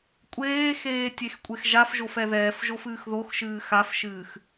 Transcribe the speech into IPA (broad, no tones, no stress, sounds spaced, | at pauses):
kʷʼ eː x eː tʲ e x kʷʼ e x ʒ a f ʒ o f ɛ ð ɛː f ʒ o f ɨː x ð o x ʃ ɨː x a f ʃ ɨː x